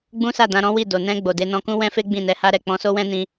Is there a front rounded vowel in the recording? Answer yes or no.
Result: no